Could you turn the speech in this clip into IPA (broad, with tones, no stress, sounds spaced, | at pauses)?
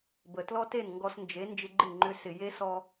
b ə˨ t l ɔ˦ t e˦˨ n ŋ ɡ ɔ˧ s n d͡ʒ e˨˦ n d͡ʒ ɪ˧ ɡ͡ǃ ɪ˦˨ ŋ͡ǃ ʏ˧ s ɪ˨ j e˦ s ɔ˧